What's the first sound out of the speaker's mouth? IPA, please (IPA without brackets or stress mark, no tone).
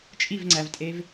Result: t͡ʃʼ